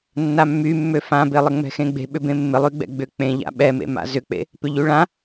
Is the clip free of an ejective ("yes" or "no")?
yes